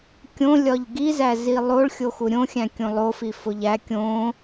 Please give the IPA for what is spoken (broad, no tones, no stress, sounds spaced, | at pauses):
kʲ õ lʲ ɒ ʎ ɡ i z æ z i lˠ o ɭ xʲ o x u ɾʲ õ xʲ æ̃ kʲ õ lˠ o f i f o ʎ æ kʲ õ